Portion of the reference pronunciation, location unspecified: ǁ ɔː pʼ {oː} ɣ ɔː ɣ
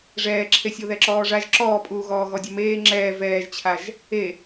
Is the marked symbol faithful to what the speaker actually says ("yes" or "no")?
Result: no